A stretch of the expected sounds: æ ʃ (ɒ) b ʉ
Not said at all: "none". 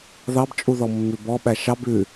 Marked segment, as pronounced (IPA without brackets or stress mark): ɑ